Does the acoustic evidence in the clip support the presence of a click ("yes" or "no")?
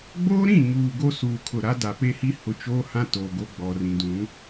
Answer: no